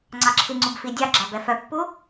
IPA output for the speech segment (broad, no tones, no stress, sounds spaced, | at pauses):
ŋ͡ǀ ɑ ǁʰ i ŋ͡ǀ u b f i dʲ ɑ ɡ͡ǁ ɑ b ɛ f œ pː u